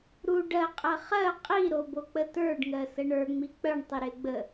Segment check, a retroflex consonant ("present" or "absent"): present